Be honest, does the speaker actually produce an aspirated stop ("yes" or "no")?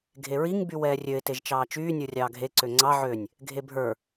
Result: no